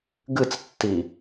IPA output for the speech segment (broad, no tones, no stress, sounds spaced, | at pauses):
ɡ ɨ t͡s tː i